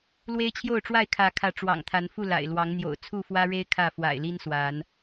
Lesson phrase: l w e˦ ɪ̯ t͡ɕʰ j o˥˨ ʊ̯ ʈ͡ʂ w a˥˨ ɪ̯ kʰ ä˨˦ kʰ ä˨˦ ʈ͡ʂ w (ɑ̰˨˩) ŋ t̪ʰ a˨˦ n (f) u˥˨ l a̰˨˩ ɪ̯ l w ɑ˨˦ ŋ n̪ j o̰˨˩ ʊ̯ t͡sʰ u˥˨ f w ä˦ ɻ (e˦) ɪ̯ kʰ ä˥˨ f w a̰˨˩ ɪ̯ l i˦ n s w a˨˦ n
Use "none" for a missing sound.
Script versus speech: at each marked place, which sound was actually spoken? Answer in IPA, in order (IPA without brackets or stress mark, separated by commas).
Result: ɑ̰˨˩, f, e˦